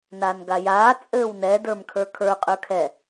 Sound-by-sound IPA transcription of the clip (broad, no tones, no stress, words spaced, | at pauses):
naːnɡajaː t͡sʼɘːwnɛ də˞mkʰə˞kʰə˞ qʼə˞kʰɛ